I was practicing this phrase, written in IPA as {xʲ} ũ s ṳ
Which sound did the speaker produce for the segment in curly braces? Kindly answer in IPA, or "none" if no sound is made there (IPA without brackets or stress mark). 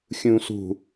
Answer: xʲ